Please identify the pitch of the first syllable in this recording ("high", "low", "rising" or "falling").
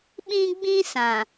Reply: high